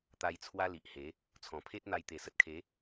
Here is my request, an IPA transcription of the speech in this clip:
t̪ a˧ j t͡sʰ w a˦ l i˨ ʔ h e˨˦ | t͡sʰ ɔ̃˨˩ pʰ e˦ t̚ n̪ a˧ j t̪ e˨˩ s ə˨ t̚ kʰ e˨˦

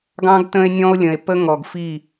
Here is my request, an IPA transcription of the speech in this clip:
ɡ ɑ̃˦ ɡ t ə̃˦ e̯ nʲ ɔ̃˦ o̯ lʲ ə̃˨ e̯ p ə˦ ŋ ɔ˨ ɡ f i˦˨

